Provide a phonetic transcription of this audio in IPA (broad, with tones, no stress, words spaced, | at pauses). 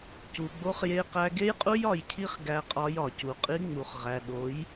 cu˨ɡ͡bo˦χ je˦qæ˦ ɡe˦jqʼu˦jɒ˨jcʰi˦χ ɡæ˦qʼɒ˦jɒ˨ cu˨qʼi˦ŋ͡mu˨χʁæ˨ ɗo˨˦j